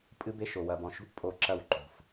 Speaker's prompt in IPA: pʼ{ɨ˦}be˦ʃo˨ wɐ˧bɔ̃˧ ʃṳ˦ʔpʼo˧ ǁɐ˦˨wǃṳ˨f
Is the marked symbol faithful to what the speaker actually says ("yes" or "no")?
yes